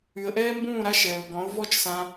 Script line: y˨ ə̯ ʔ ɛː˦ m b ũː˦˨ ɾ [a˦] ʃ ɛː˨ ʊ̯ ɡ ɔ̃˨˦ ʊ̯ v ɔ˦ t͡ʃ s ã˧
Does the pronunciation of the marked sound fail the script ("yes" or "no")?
no